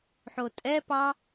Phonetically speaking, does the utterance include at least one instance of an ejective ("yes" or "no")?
yes